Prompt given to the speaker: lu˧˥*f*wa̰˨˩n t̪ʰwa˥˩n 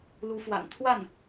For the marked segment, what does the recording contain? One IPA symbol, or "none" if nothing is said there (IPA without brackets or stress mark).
f